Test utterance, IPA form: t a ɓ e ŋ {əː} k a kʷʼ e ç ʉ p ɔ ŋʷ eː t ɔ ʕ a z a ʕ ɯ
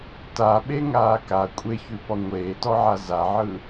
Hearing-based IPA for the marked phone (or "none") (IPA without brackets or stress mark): aː